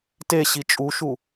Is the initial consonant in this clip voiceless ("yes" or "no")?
yes